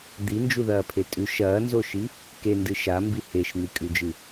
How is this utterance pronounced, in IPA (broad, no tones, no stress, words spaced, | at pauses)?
d̪ind͡ʒuðɐːpʰe tʼʉʃ ɐːnzoʃi | kendɨ ʃambi heʃn̪ikʼʉd͡ʒɨ